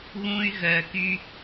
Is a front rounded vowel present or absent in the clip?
present